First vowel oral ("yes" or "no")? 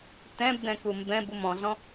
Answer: no